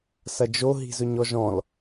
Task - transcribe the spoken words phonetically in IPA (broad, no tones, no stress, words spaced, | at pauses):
sɐd͡ʒo ɦi̤zɵɲɔʒɔ̃l